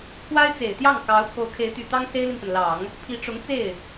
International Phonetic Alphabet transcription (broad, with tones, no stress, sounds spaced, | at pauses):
pʰ w a˥ ɪ̯ t͡s e˨˩ ɪ̯ t̪ j ɑ˥˩ ŋ k ɑ˧˥ ʊ̯ kʰ o˧˥ ʊ̯ kʰ e˧˥ ɪ̯ t̪ y˨˩ t̪ ɑ˥ ŋ s e˥ ɪ̯ l i˨ n p ə˩ n l ɑ˨˩˦ ŋ | pʰ i˧˥ ʈ͡ʂ ʊ˧˥ ŋ t͡s e˥˩ ɪ̯